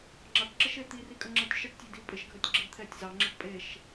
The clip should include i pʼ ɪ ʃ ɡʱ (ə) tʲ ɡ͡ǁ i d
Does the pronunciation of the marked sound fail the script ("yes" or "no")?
no